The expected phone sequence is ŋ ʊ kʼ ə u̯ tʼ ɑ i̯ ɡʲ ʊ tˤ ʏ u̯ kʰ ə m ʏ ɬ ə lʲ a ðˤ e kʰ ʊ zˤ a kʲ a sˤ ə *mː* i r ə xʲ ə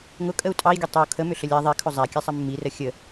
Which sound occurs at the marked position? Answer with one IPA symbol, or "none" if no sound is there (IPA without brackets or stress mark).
mː